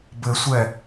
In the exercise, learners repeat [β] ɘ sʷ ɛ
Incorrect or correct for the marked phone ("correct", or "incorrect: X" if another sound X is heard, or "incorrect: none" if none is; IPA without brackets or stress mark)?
incorrect: b